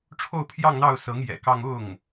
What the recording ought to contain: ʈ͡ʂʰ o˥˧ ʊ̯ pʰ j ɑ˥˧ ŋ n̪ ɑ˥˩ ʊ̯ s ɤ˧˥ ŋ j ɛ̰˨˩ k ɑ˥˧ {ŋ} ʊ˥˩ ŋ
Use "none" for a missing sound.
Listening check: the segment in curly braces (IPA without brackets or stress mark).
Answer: ŋ